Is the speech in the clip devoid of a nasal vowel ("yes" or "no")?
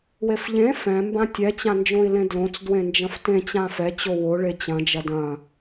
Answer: no